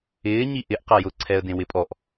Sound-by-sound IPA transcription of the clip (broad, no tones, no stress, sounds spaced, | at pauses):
ɪː ɲ i ʔ ɪ ʔ q a j ʊ ǀʰ ɛ ə̯ d ẽ w ɪ pʼ ɔ ʔ